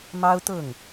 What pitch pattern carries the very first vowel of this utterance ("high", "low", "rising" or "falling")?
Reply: high